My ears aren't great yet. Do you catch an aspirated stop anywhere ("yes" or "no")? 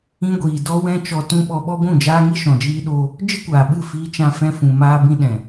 no